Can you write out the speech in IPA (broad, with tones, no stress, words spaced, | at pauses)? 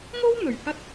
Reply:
ŋo˥wn̪ɵ˨˩ɥ hɐ˧t̚